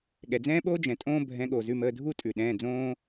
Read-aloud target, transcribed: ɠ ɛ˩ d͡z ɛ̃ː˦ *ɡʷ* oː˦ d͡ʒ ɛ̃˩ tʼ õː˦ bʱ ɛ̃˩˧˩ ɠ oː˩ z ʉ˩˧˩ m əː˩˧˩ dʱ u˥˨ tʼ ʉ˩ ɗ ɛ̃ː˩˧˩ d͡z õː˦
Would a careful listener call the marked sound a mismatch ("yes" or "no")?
yes